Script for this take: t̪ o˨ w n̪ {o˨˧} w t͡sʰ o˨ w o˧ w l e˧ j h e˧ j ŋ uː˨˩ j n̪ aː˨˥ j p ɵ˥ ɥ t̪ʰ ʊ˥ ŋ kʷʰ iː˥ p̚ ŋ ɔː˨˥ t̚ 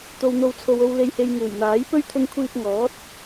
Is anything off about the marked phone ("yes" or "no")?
yes